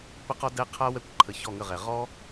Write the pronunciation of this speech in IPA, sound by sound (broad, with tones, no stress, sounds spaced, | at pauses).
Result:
p ə˦ q ɔ˦ d ɛ˦ qʰ a˦ w ɛ˦˨ kʷ ǃʰ ə˨ ç ɔ˦˨ ŋ ə˦˨ ʁ ɛ˨ ʁ ɔ˦